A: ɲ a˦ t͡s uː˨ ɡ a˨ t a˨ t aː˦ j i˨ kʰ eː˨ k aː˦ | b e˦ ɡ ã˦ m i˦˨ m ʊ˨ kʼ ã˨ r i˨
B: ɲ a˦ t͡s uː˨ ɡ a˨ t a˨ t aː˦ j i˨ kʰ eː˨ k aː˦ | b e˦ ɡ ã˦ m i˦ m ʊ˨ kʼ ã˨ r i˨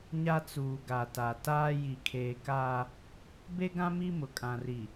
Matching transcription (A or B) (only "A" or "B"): B